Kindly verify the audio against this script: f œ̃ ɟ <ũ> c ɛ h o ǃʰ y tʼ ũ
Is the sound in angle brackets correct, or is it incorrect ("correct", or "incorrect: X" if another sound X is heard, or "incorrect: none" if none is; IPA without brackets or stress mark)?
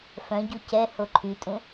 incorrect: u